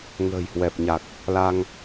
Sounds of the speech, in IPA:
ŋə̤ː˨˩jhwɛ˨˩p̚ ɲa˨˩k̚ | la˧ŋ

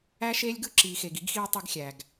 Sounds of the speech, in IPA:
æ˦ʃeː˦lʲɡɯ˦ ǁiː˨xe˨ɡi˦ɡxiː˦ tˤy˦ɡxʲæ˨ɡ

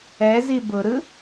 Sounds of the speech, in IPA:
ɛzi bʊɾɯ

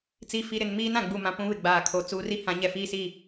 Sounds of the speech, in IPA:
t͡si˨fi˨ɾɪ˨n miː˦nã˨ɡ͡bu˨mã˨ pũ˦βɪ˨ɡ͡baː˨kʰo˨ t͡suː˨ri˦hã˨˦ɲɛ˨ fiː˦si˦˨

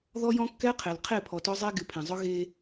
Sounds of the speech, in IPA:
ðɔ˦jɔ̃˦kːɛ˦qʰe˨l qʰe˦˨pʰɔ˨tœ˦zˤe˦ ɡɪ˨pʰẽ˨zˤʊ˦ ɣe˦

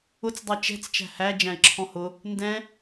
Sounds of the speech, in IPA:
ʊt͡s dˤʌt͡ʃɛ̤t͡s t͡ʃæ̤hæ d͡ʒæ̃ɪ̯ǁʰɔ̃hʊ | ndɛ̃

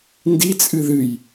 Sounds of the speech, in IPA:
ndit͡sʼɨ ðɨj

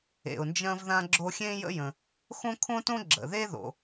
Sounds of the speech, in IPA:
ḛ˩ʊ̯nd͡ʒɐ̃˥vðã˥ɡ͡ǁo˥ xʲẽ˥jə̰˥jə̃˩ | xõ˥kʰõ˥tõ˥ ɡ͡ǁə̰˩ ðe˥ðo̰˩

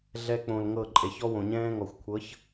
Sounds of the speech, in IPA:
ɮɛ˧k͡põ˨l ŋɤ˦˨ǃʼe˨ç ɔ˦wõ˨ɲɛ̃ː˦ŋɔ˨xʷ kʷʰɤ˨˦ç

